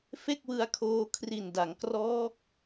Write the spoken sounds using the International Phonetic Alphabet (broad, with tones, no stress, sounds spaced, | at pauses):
f e˥˩ k̚ w ɯ˧ a̯ kʰ oː˧ kʰ r i˨˩ n d a˩˦ ŋ k r ɔː˦˥ k̚